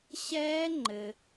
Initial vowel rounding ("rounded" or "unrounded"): unrounded